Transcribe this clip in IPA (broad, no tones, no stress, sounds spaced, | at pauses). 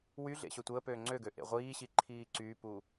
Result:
w y ɮ ḛ ɕ ø tʷ əː p øː ŋ͡ǀ ø ɡ ø ʔ ḛ ʁʷ iː ɕ i ǃʰ iː ǀ yː p u